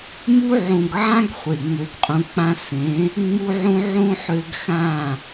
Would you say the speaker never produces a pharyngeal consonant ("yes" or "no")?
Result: no